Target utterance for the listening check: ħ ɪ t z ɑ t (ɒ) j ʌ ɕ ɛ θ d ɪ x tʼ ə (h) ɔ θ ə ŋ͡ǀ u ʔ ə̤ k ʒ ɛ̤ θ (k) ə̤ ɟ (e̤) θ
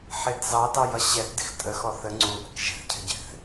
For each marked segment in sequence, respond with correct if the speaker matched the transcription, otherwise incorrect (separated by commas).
incorrect, incorrect, incorrect, incorrect